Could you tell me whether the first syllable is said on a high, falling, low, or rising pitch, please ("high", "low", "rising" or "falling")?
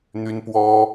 high